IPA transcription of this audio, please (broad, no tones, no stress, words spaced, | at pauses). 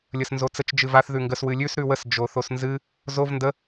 lʲəsnzot͡sət͡ʃ d͡ʒɨvaθ ðʉŋɡəs wɨlʲʉs ɾʉwəs d͡ʒoθosnzɨ | zov ndə